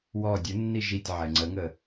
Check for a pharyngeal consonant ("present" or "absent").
present